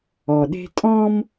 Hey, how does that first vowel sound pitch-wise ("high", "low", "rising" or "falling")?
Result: low